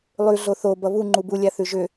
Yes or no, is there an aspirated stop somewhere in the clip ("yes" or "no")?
no